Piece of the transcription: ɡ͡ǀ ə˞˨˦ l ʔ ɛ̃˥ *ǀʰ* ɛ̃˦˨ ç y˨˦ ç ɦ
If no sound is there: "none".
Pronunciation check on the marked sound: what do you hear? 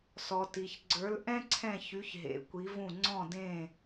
ǀʰ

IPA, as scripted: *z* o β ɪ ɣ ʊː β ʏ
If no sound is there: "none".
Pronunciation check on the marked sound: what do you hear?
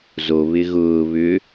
z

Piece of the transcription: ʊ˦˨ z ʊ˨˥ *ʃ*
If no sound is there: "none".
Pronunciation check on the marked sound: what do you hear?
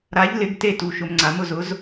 z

